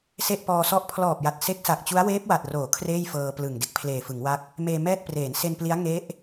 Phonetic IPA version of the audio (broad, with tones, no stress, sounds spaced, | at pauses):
s e˥˩ ʔ p ɔː˧ s ɔ˥˩ ʔ pʰ l ɔː˨˩ p̚ j a˨˩ t̚ s e˦˥ k̚ s a˨˩ k̚ t͡ɕ u˦˥ a̯ w eː˦˥ p̚ w a˨˩ t̚ r oː˩˦ kʰ r eː˥˩ j f ɤː˧ p l ɯ˨˩ ŋ d e˦˥ k̚ pʰ l eː˨˩ f ɯ˩˦ ŋ w a˥˩ k̚ | m eː˧ m ɛː˥˩ t̚ p r eː˩˦ n s e˧ n p l i˦˥ a̯ ŋ e˦˥ ʔ